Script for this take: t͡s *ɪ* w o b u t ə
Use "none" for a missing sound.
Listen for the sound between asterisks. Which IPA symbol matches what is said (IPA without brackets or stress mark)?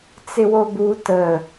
ɪ